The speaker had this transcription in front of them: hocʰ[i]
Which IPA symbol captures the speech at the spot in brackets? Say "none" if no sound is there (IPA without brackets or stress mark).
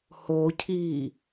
i